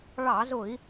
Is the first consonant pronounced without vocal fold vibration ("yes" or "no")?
no